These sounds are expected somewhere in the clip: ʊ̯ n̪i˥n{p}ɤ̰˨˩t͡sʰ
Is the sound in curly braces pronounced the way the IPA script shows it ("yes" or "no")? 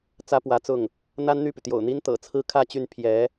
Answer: no